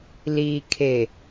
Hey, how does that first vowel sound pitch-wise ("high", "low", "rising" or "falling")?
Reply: low